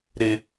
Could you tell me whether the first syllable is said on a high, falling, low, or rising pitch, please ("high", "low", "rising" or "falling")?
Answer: low